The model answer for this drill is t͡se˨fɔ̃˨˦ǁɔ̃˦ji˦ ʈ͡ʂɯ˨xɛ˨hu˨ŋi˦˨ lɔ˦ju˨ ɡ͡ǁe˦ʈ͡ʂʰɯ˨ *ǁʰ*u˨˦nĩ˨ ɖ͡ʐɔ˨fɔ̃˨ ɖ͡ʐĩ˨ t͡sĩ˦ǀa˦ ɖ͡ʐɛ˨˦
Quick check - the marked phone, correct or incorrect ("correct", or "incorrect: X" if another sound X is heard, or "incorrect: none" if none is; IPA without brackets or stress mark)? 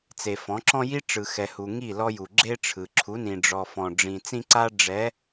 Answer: correct